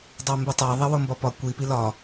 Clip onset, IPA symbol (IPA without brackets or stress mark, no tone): dˤ